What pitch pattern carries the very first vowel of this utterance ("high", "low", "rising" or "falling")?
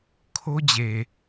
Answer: high